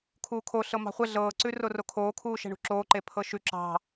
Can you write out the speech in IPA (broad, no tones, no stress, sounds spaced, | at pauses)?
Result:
kʰ uː kʰ o ɬ ɤ m ɑ̤ χʷ ɛ ɮ ɤː ǀ ʉ r o r o kʰ oː kʰ uː ʃ ɛ̤ ɳ ṳ ǁ oː ǃ e pʰ ɤ ʃ ʉ ǁ ɑ̤